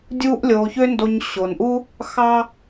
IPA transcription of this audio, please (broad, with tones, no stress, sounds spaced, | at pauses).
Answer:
dʲ uː˦ ʔ lʲ oː˧ ç ø˦ n d o˧ ɲ ɕ o˨ n ʔ u˦ | x ɑ˦